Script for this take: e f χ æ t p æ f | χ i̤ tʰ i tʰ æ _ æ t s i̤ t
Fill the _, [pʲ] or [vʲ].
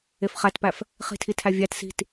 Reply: vʲ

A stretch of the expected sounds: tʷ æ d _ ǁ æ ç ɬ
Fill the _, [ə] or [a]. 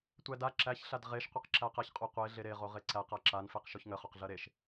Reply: a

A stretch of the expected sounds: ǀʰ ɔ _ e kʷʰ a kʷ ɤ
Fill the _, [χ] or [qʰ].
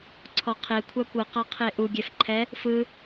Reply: qʰ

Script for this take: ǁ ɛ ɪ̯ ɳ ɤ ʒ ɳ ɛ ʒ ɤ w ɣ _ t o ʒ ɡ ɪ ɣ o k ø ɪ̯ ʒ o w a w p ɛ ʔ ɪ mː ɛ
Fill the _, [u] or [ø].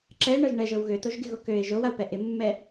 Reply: ø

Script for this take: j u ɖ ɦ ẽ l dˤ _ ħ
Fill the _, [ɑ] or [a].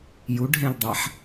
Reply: a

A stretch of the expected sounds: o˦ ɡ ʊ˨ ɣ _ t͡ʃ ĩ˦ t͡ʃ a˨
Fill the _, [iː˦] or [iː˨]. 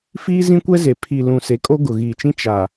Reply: iː˨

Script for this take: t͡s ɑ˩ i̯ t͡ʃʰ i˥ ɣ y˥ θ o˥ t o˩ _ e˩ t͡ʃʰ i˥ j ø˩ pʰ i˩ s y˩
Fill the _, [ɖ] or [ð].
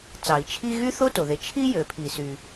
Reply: ð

